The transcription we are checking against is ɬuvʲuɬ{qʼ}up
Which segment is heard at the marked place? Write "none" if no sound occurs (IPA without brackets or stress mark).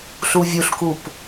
k